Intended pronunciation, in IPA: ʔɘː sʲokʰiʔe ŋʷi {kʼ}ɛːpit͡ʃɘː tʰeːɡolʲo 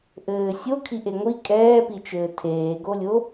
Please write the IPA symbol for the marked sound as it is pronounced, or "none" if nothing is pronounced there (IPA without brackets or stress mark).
kʼ